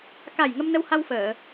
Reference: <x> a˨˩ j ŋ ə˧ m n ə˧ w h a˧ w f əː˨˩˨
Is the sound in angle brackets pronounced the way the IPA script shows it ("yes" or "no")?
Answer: no